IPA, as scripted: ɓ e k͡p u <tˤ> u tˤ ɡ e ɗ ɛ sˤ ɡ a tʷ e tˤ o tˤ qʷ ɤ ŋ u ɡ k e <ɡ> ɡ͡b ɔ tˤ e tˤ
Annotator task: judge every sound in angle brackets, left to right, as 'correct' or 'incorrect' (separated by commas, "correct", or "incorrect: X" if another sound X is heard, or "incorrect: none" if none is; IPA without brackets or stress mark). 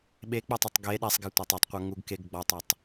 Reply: correct, correct